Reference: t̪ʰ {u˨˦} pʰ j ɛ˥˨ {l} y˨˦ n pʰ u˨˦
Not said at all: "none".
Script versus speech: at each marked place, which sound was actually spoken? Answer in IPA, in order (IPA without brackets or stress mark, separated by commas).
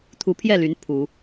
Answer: u˨˦, l